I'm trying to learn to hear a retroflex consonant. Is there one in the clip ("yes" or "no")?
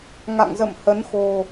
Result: no